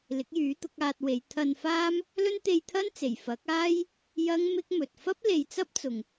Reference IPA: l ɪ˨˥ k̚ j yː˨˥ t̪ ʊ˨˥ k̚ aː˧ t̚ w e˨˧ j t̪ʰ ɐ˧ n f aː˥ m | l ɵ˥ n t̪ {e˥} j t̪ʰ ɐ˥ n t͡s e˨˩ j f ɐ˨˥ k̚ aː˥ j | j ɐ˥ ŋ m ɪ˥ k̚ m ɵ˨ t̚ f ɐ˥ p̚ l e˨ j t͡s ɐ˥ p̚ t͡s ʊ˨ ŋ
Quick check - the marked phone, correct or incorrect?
incorrect